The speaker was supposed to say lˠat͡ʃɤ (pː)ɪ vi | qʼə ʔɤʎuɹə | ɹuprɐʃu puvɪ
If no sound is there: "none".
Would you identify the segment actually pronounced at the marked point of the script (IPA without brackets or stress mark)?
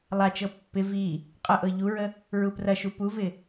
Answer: pː